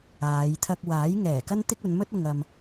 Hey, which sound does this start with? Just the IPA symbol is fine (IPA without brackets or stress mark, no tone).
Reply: aː